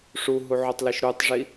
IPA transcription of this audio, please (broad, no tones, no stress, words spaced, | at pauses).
ʂuɦuʕotˤliʃ ɾutˤʐi